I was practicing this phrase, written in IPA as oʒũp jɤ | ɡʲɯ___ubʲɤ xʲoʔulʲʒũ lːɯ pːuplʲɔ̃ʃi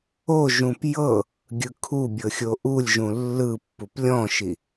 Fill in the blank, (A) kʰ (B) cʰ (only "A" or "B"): A